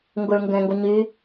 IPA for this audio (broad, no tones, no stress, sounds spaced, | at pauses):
ŋ ɡ ʊ ɭ ŋ ɡ ɛ̃ ŋ ɡ o ɲ y